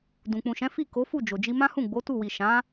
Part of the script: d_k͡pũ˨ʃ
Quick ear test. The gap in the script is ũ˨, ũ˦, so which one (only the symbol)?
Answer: ũ˨